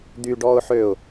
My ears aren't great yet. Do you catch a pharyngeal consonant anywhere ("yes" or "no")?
yes